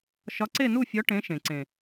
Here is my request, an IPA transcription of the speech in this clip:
ʃ ɒ˨˥ ǀ e˥˨ n u˥˨ fʲ ɒ˨˥ ʈ ẽ˨˥ ʃ ẽ˩ ǀ ẽ˩

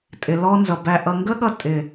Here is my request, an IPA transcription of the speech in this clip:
tʼ ɪ˨ l ɔ˧ n z ʌ˨ b æ˨ ʔ ʌ˨ ŋ ɡ ə˦ ɠ ʌ˧ tʼ ɪ˨

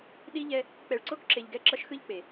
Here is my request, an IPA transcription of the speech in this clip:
ɗ i˦ ʎ ɛ˦ | k͡p ɛ˨ ɭ ǀ o˦ k ǁ e˨ ʎ ɡ ɛ˦˨ ǁ ʌ˦ ʃ x ɯ˦ ʎ k͡p e˨

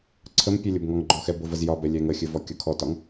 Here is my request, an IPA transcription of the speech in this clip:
ǀʰ ə m pʲ ɛ lʲ ʊ b ŋ ɔ ŋ ɡ͡ǃ ɔ x ɛ b ʊ v ə z j ɒ b ɛ lʲ ɛ ŋ ə xʲ ɘ v ɔ kʲ ʊ kʰ ɔ t ɒ ŋ

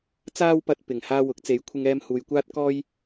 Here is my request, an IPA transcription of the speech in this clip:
t͡s aː˥ w p ɐ˧ t̚ p ɪ˨˩ ŋ h aː˧ w ʊ˨˥ k̚ t͡s e˨˥ j kʷʰ ɪ˧ ŋ ɛː˧ m h uː˨ j kʷ aː˥ t̚ k ɔː˥ j

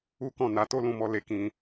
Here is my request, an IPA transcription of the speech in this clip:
u˦ k ɔ̃˦˨ n a˨˦ t o˦ l ũ˦˨ m ɔ˧ l e˧ k ĩ˧

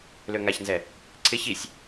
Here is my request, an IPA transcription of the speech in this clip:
l ø ŋ a ç n z ɛ | ǀʰ ɪ ç i sʲ

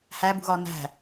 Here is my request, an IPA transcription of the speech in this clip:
h æ b ṳ ɣ ɒ n æ̤

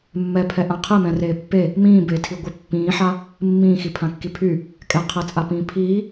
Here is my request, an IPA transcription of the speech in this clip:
mː ɛ pʰ ɛ ʔ ã qʰ e m ɛ̃ r eː pː e | m ĩː b eː tʰ i ɡʷ i pː ĩː ħ a | mː ĩː x i pʰ ã kː i pʰ y | kʼ ɛ qʰ e t͡sʼ a p ĩː pʰ iː

